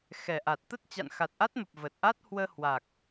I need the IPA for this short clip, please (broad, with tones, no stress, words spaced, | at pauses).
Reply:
xɛ˨˩ʔa˨˩t̚t̪ə˦˥t̚ t͡ɕa̰˧˨nxa˨˩t̚ʔa˦˥t̚mə˨˩p̚ və˨˩t̚ʔa˦˥t̚ hwəː˧hwa˨˩k̚